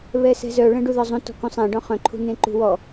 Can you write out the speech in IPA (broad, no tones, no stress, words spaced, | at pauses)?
βɛsɛ̤zœ ɭɛ̃ɖuðɔzˤũ tɔ̤kũsˤɛ̃ ɖɔ̃χœ̃ ǃʰṳnẽǃṳwɔ